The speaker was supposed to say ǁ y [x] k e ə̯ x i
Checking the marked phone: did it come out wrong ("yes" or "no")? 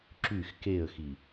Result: no